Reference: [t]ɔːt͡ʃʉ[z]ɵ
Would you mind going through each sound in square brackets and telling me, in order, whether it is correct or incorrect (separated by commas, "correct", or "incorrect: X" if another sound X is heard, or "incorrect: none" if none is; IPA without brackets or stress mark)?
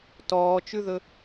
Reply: correct, incorrect: ð